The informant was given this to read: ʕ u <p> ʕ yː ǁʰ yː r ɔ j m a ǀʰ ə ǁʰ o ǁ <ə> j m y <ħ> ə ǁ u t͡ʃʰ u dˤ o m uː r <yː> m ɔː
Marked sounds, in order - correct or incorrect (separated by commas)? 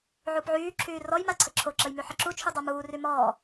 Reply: correct, correct, correct, incorrect